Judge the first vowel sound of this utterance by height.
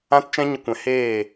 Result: low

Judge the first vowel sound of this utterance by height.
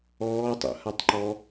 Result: mid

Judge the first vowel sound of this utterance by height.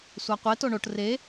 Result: low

